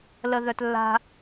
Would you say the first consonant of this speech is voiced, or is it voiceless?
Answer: voiced